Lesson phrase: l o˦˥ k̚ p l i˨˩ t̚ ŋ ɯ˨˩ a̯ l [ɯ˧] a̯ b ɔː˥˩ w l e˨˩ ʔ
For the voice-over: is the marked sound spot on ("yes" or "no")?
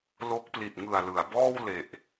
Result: no